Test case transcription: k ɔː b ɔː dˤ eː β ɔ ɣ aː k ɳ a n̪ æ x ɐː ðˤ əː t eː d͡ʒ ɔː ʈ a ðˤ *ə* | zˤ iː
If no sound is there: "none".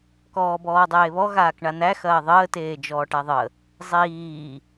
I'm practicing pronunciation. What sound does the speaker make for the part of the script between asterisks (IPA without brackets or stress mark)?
ə